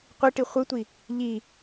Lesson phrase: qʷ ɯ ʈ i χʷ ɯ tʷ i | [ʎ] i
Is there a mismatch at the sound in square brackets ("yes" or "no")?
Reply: no